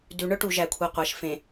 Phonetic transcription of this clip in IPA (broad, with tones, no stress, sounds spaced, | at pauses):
d ʉ˨ ɳ œ˦ ʈ u˨ ʒ æ˨ kʷʰ e˨ qʷ æ˨ ʃ f ẽ˨